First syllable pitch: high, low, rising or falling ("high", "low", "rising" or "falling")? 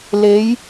rising